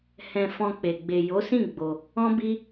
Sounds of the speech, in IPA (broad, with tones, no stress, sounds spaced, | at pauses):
h ɛ̃˧ f ɔ̃˧ k͡p e˨ ɡ͡b e˨ j o˨˦ s ĩ˦˨ ɡ͡b o˧ | ɔ̃˦ b i˦